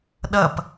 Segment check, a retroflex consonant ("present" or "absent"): absent